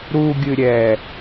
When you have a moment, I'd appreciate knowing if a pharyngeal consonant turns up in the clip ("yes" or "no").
no